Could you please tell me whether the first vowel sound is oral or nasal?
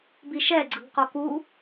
oral